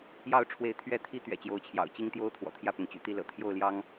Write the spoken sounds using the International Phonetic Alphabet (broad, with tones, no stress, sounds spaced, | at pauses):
j ɑ˥˨ ʊ̯ ʈ͡ʂʰ w e˨˦ ɪ̯ t̪ʰ ɥ ɛ˨˦ t̪ʰ i˨˦ t̪ ɥ ɛ̰˨˩ t͡ɕ j o˨˦ ʊ̯ t͡ɕʰ j ɑ̰˨˩ ʊ̯ t͡ɕ i˦ ŋ t̪ j o˦ ʊ̯ t̪ʰ w ɔ̰˨˩ t̪ʰ j ä˥˨ p ʊ˩ ŋ t͡ɕ y̰˨˩ t̪ i˥˨ l ɤ̰˨˩ t̪ʰ j o˥˨ ʊ̯ l j ɑ˦ ŋ